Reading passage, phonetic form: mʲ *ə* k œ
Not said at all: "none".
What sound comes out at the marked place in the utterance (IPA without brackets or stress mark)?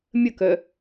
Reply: ə